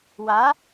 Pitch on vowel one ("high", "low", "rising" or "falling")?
rising